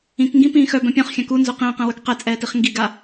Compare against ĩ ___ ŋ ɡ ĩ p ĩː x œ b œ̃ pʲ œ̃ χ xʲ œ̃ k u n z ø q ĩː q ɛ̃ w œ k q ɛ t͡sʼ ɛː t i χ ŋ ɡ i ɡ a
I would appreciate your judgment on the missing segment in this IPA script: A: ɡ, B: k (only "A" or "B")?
B